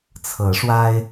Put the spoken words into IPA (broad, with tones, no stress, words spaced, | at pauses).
t͡sʰɤ˨˦ʂwa˦ɪ̯